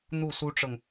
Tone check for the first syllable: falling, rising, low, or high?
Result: falling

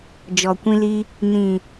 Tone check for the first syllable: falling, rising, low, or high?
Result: low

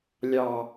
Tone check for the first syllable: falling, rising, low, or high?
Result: low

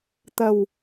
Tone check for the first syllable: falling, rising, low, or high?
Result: low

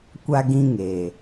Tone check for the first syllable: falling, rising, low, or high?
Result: high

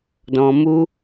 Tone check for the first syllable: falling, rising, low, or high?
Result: low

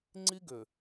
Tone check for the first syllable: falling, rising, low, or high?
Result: high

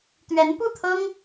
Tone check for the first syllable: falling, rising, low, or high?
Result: rising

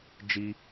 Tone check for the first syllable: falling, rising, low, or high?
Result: high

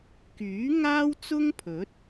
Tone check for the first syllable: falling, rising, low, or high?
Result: rising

